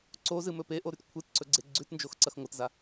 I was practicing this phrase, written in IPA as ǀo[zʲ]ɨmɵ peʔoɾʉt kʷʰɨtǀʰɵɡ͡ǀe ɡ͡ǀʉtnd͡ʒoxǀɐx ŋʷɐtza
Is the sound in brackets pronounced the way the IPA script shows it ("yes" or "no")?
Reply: no